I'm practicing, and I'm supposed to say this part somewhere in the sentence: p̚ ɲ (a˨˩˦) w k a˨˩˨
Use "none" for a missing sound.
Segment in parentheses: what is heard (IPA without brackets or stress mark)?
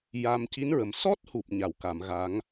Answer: a˨˩˨